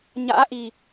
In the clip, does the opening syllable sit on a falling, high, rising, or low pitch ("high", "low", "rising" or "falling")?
rising